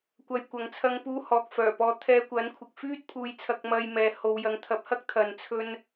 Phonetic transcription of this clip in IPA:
kʷ ɐ˨˧ j kʷ ɐ˨˥ ŋ t͡sʰ ɐ˧ ŋ p uː˧ h ɔː˨ k̚ f œː˨˩ p ɔː˧ t̪ʰ ɛː˧ kʷ ɐ˨˥ n kʷʰ ɪ˨ k̚ f yː˥ t̚ pʰ uː˨˧ j t͡sʰ ɐ˧ k̚ m ɐ˧ j m ɛː˨ h o˨ w j ɐ˨ ŋ t̪ʰ ɐ˨˥ p̚ h ɐ˥ k̚ t̪ʰ ɐ˨ n t͡sʰ ɵ˧ n

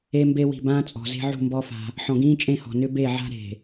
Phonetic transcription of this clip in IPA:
e˦ m b e˦ w i̤˨ b ãː˦ t͡sʼ ɔ̤˨ z e̤˦ ʕ ṳ˦˨ m b ɔ˦ f a̤˦ | ħ ɔ̃˨ ɡ ĩː˦ t͡ʃʼ ẽ˦˨ h ɔ̤˨ n ʏ˦ b e˦˨ ʕ a̤˦ ɾ e̤˨

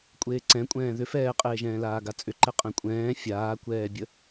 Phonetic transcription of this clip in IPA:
kʷʼ eː ǀ ɛ̃ kʷʼ ɛ̃ː ð ʏ f ɛː qʼ eː ʒ ɛ̃ː l aː ɡ a t͡sʼ ʏ ǃ ɛ qʼ ɛ̃ kʷʼ ɛ̃ː fʲ aː kʷ ɛː bʲ ə

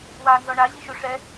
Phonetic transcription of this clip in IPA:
w aː n z ɔ ɳ a ʑ i ʃ o ʂ ɛ

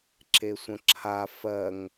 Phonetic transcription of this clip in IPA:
ǁ e sʷ ə̃ ǁʰ a f ɜ ŋ

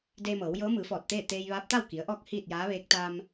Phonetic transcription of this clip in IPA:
d eː˧ m ɤː˩˧ w j ɤː˧˥ m ɯː˩˧ f ɔː˧˩ t̚ t̪ eː˥˨ t̪ eː˧ j ʋ aː˧˥ p̚ t̪ a˥˨ w k i˩˧ ə̯ ʔ ɔː˧ k̚ h iː˥˨ t̚ j aː˧˥ ʋ eː˧˥ k̚ t̪ aː˧ m

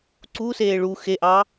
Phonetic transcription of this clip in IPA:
ǀ u s eː ɭ u x e ʔ ɑ

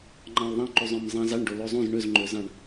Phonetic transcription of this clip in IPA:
ŋ͡ǃ ɑ̃ l ðˤ æ̃ ǃ u zˤ œ̃ m zˤ æ̃ z ɑ ɳ ɖ o l o zˤ ũ z ɳ ø z ŋ͡ǃ ø z ɑ̃ ɳ

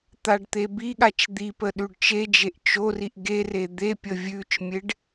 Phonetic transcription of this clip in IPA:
t̪ a ɖ t̪ e b i ɠ a t͡ʃ d̪ i p ə ɗ ʉ ɖ t͡ʃ e d͡ʒ e ʔ t͡ʃ o r i ʔ ɡ e r e d̪ e pʲ ə vʲ ʉ t͡ʃ mʲ e ɖ

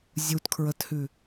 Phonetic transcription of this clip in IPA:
zʲ u t kʰ ɹ əː t h ʉ

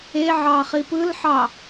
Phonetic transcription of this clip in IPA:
e ʕ ɑː χ i p ɯ l ħ ɑ

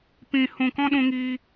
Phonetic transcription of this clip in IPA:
p ĩ˧ h ũ˧ k ɔ̃˦ ɗ ũ˦ ŋ iː˦

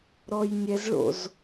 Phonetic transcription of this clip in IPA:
ɾ ɔ j nʲ ɛ z ɭ o̰ z

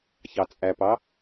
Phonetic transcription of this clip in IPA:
ç ɑ t͡sʼ æ p ɑ

